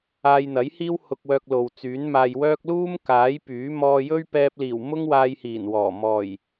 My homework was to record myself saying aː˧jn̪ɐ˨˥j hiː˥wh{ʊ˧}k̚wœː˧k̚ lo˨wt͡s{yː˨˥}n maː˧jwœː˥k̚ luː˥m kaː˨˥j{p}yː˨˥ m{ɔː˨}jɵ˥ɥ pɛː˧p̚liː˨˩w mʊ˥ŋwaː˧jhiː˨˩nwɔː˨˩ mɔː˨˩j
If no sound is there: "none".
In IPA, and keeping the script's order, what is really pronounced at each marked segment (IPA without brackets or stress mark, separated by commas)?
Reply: ʊ˧, yː˨˥, p, ɔː˧